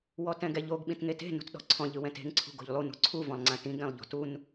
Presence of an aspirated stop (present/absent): present